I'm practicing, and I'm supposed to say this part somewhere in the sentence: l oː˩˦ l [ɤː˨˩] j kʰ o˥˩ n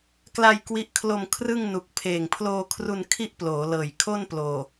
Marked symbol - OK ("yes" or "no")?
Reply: yes